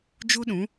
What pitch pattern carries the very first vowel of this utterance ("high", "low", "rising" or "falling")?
high